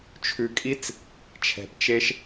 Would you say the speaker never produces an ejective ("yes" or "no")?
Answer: no